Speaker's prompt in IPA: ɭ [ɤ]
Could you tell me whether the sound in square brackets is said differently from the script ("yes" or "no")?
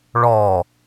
yes